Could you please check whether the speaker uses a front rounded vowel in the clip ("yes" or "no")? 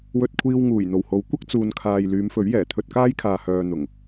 yes